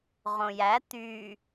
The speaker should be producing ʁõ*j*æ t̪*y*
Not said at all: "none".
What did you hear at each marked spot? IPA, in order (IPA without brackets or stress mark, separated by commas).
j, y